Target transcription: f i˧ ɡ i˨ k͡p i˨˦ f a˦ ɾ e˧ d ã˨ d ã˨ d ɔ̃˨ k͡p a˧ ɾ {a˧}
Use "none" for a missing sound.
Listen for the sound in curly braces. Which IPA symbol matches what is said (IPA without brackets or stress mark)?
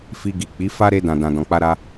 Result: a˧